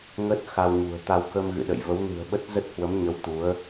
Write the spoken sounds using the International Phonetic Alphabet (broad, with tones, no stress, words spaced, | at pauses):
ŋə˦˥t̚ xa˧wɲṳ˨˩ə̯t̪a˧w kə˧mɣɨ̰˧˨ɗə̰˧˨j və˨˦wnɨ̤˨˩ə̯ɓə˦˥t̚ zə˦˥t̚hwə˨˦mɲə˨˦w t̪u˨˦ə̯